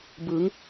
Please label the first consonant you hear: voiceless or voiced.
voiced